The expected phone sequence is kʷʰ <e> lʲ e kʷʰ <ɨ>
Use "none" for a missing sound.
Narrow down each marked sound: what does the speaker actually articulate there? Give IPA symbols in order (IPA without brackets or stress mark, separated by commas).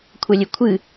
ɛ, ɨ